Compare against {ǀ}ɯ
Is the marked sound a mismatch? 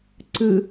no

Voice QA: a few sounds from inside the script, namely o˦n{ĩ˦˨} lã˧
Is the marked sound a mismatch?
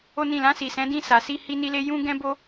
no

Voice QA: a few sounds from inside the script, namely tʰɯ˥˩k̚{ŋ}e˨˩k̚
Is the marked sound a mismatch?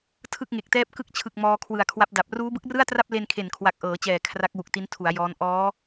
no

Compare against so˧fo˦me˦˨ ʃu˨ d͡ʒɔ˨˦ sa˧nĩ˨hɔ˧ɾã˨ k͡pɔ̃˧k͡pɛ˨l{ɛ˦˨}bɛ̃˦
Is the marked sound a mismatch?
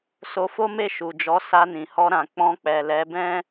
yes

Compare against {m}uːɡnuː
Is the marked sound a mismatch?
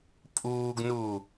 yes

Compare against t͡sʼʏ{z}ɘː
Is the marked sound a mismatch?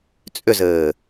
no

